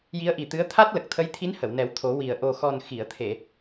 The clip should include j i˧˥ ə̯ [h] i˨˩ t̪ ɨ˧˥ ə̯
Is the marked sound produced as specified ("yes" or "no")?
no